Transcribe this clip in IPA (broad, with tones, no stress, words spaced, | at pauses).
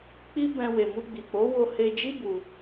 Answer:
k͡pi˦ bɛ̃˧ we˨mu˧ɡ͡bi˨k͡po˨˦ wo˧he˧d͡ʒi˦ bu˧